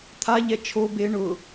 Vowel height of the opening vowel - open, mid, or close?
open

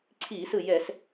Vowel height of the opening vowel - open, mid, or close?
close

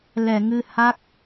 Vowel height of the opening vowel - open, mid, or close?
mid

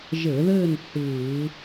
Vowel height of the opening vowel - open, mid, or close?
mid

